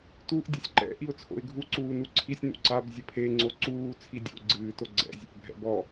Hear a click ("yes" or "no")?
yes